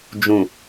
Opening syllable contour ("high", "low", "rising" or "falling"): low